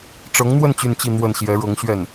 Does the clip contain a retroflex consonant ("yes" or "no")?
yes